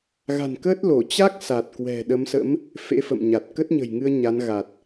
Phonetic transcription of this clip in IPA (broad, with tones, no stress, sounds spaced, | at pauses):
ɣ a̤˨˩ n k əː˦˥ t̚ l o˧˩ t͡ɕ a˦˥ k̚ s a˨˩ t̚ k w ɛ̤˨˩ ɗ ə˨˦ m s ə̰˧˥ m | f ḛ˧˥ f ə̰˧˨ m ɲ a˨˩ t̚ k ə˦˥ t̚ ɲ ə̤˨˩ j ŋ ɨ˧ ə̯ ɲ a˨˦ n ɣ a˨˩ t̚